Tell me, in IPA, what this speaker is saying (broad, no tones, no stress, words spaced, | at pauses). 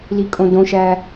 likʼõdõʃæ